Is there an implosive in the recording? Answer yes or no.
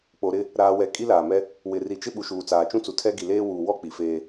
yes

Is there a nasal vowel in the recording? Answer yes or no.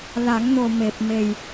no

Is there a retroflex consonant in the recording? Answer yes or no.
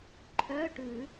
yes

